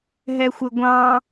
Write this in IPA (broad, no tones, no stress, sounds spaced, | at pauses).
ɦ ɛ xʷ ɘ ɡʷ ɑ̃